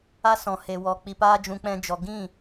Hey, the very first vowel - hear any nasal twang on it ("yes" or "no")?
no